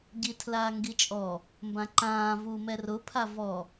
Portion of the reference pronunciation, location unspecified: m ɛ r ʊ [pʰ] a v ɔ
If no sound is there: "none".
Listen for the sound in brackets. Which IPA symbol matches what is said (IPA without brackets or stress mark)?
pʰ